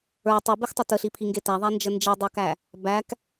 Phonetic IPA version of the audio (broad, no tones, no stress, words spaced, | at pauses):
ə˞ tˤubixtˤə təɬipʰiŋɡe tæðˤænd͡ʒə nd͡ʒidˤə˞kæ | bæk